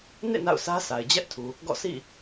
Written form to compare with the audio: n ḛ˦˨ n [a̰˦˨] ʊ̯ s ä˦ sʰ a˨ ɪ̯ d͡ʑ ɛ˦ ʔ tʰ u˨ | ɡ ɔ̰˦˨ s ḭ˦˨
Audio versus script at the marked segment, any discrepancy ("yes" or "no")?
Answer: no